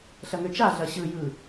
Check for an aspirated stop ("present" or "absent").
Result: absent